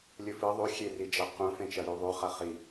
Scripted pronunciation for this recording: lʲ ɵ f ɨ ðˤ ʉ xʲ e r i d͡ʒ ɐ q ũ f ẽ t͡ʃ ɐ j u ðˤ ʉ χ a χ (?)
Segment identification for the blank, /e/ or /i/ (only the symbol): i